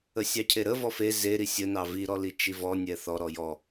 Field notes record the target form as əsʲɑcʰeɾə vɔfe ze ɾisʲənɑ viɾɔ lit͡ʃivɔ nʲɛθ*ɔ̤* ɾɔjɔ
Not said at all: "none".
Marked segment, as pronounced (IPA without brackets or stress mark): ɔ